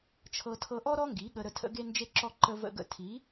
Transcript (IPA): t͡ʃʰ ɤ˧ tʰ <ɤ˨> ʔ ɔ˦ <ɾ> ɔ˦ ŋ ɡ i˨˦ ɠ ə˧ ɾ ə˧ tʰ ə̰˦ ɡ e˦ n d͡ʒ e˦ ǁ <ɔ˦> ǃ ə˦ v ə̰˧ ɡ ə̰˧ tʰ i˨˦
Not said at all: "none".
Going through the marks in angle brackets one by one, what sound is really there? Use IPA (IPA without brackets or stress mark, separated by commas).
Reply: ɤ˧, ɾ, ɔ˦